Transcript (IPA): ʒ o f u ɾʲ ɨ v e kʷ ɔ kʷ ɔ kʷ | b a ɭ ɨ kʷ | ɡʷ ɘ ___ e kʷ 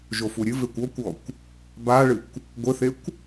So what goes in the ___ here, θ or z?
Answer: θ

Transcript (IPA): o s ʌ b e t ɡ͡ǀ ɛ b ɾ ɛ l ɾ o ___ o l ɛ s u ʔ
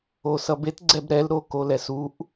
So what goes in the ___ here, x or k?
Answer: k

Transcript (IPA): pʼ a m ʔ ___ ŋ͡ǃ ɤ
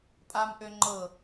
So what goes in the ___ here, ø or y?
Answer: ø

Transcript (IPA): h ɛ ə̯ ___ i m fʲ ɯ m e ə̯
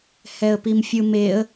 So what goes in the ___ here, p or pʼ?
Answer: p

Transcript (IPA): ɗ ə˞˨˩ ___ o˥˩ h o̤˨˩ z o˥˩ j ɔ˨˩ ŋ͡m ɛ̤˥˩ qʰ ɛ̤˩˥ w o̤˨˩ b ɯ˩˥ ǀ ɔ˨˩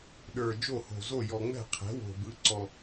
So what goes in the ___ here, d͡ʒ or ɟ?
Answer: d͡ʒ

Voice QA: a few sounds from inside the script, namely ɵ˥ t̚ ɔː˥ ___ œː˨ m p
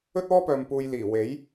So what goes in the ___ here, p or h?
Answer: p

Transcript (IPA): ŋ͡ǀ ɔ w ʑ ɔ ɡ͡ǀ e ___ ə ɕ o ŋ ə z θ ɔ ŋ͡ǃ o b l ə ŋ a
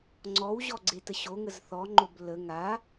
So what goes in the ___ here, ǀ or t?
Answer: t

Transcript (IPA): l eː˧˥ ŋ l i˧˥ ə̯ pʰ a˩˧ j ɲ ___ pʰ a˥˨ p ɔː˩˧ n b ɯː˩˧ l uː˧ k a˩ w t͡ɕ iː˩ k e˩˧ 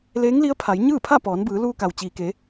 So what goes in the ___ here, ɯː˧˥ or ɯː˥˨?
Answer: ɯː˥˨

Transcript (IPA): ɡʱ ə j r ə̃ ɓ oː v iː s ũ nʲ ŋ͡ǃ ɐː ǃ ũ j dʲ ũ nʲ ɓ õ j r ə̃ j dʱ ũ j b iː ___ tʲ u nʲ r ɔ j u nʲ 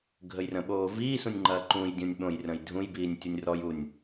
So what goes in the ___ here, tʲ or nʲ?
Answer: nʲ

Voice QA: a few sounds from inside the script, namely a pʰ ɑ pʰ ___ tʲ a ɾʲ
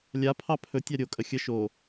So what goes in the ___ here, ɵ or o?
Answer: ɵ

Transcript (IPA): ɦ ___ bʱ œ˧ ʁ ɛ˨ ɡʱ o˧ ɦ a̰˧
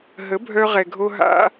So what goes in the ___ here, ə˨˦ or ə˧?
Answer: ə˨˦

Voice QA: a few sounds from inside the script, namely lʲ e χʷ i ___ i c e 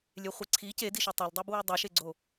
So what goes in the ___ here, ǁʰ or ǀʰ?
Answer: ǀʰ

